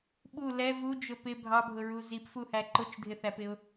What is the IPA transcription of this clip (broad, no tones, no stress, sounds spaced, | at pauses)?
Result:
ɓ u l ɛ v u d͡ʒ ʊ p ɪ bʱ ɑ bʱ ʊ ɹ u z i p f u h æ ǃ ʊ t͡ʃ dʱ ɪ θ æ p ɪ ʊ̯